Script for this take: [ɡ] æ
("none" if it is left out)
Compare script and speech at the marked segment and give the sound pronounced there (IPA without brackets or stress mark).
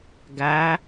ɡ